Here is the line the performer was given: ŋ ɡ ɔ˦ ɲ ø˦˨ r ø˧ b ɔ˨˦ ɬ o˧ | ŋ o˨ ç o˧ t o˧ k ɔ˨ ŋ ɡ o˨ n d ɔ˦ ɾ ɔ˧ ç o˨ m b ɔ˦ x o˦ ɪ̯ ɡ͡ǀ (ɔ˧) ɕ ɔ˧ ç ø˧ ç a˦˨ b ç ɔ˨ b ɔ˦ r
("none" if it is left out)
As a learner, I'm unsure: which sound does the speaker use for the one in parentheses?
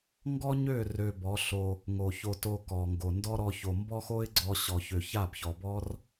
ɔ˧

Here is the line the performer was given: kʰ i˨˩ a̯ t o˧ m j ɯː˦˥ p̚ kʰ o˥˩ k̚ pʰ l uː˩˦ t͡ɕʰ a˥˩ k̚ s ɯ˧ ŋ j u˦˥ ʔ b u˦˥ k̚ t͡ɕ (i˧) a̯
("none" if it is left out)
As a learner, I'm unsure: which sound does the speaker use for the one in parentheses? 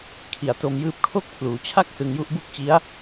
i˦˥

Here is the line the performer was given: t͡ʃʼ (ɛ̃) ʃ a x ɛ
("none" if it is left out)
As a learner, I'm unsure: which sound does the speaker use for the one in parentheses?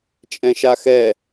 ɛ̃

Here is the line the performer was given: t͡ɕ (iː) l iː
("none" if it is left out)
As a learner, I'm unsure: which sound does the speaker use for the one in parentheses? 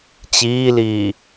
iː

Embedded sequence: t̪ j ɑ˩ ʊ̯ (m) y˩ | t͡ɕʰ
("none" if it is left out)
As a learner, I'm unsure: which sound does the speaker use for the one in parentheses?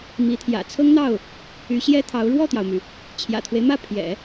m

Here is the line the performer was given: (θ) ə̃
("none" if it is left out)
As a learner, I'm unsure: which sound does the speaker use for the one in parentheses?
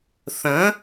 θ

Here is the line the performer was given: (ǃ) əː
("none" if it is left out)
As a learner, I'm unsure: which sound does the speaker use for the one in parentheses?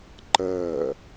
ǃ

